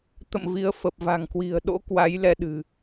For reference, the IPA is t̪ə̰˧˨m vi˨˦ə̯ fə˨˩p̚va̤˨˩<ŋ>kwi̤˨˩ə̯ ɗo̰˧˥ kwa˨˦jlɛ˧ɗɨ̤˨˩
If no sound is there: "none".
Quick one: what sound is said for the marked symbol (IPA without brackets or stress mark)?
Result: ŋ